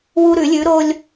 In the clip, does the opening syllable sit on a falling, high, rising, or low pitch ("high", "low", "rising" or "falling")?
high